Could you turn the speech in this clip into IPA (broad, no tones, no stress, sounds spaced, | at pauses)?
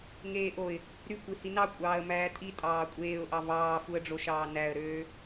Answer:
ŋ eː ʔ o ɪ̯ | ɾ y kʷ i h i n ɑ kʷʼ ɑː ə̯ m æː tʼ i tʼ ɑː kʷʼ eː ʊ̯ ʔ ɑ v ɑː f u ə̯ ɖ͡ʐ o ʃ ɑː n æ ə̯ ɾ øː